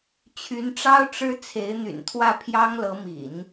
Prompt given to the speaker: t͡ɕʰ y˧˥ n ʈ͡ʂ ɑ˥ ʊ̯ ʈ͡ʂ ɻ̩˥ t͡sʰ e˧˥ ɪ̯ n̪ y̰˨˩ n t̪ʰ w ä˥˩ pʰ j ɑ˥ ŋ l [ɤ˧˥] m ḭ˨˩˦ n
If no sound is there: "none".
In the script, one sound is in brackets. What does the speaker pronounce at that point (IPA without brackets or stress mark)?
ɤ˧˥